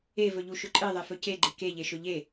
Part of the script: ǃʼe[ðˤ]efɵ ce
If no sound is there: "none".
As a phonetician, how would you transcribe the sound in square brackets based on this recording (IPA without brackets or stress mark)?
ðˤ